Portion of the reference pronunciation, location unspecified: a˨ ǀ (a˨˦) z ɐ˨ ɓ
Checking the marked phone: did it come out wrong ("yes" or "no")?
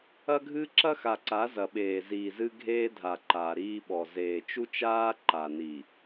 no